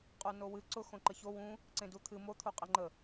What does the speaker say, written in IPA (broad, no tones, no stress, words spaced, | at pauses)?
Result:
qʼonowɨ ǀʊ xõǃəço wũ | ǀẽdut̪ʰɨ mot̪ʰu qʼeŋ͡ǃə